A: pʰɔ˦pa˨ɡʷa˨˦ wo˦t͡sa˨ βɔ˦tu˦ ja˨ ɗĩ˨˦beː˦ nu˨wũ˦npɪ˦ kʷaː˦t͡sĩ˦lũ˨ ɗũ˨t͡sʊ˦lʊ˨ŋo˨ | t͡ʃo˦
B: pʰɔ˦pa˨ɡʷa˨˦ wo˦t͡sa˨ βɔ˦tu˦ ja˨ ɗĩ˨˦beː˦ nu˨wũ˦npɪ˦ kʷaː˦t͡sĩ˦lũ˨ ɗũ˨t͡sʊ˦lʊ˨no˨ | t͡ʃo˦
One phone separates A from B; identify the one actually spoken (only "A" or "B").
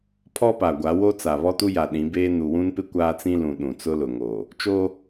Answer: A